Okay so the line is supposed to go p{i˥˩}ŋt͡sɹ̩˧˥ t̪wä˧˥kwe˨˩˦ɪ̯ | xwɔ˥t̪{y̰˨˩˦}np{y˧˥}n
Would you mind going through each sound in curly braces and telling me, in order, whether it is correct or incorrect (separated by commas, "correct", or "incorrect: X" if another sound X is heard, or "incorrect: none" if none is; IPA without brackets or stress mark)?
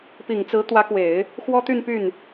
incorrect: i˨˩, incorrect: y˥˧, incorrect: y˥˩